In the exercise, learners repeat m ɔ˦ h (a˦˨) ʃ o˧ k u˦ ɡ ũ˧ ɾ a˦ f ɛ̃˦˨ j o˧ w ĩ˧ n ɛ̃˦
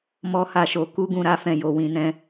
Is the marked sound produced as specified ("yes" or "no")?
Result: yes